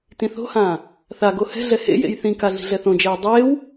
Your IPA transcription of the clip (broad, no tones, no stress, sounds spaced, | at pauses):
t ĩ θ o̤ h ãː | θ a ɡ o h ɛ̤ ɮ ɛ h ḛ j ḛ j θ ĩ k a ɮ i̤ ɮ ɛ θ õ d͡ʒ ɛː dˤ eː w